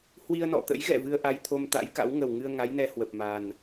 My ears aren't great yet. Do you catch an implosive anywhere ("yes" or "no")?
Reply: no